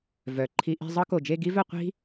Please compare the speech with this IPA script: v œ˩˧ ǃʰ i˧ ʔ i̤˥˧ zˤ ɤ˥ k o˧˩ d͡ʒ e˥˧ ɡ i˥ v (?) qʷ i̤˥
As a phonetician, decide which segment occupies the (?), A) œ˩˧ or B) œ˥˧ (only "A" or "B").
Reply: B